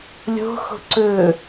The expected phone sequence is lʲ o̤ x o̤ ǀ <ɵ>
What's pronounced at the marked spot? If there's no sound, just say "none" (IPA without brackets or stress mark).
ɵ